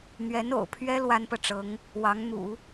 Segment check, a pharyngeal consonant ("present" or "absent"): absent